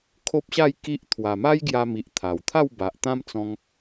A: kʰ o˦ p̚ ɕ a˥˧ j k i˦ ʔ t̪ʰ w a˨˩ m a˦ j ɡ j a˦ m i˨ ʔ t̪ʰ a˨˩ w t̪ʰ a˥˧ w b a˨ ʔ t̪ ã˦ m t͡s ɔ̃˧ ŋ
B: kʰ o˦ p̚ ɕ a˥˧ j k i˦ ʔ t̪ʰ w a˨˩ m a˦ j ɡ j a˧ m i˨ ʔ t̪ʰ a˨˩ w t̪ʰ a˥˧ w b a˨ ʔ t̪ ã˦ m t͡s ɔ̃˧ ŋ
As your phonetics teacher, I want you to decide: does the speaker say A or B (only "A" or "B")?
B